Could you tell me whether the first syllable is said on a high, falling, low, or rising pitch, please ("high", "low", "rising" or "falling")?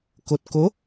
low